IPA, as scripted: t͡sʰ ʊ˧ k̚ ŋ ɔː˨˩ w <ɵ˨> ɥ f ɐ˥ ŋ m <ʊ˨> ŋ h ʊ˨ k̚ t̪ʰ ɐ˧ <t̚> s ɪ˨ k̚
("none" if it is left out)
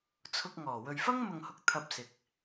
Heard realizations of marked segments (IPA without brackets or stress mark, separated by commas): ɵ˨, ʊ˨, p̚